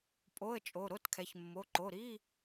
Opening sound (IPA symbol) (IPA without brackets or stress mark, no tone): pʼ